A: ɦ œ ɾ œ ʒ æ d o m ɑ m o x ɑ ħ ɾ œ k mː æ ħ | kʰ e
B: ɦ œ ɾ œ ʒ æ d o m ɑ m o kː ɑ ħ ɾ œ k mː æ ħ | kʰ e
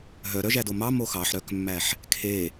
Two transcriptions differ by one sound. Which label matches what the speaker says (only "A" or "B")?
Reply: A